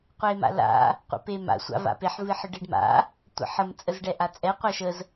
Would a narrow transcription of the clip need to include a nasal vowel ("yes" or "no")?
no